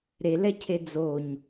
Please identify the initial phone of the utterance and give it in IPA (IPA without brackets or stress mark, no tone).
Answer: ɾ